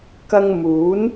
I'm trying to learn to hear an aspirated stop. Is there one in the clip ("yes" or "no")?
no